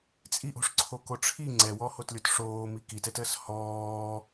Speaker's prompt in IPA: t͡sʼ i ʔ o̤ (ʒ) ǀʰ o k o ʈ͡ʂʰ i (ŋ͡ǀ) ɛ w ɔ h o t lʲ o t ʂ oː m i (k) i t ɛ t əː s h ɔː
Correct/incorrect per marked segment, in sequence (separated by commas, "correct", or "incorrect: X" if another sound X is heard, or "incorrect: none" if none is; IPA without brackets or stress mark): incorrect: ʂ, correct, correct